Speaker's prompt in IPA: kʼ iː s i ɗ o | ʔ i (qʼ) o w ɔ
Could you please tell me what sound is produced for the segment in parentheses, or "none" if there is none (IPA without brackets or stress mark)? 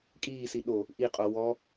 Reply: qʼ